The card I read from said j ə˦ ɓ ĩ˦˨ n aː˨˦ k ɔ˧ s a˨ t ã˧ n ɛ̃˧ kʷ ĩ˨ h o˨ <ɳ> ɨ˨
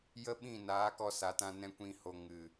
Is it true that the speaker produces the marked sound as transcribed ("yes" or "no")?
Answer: no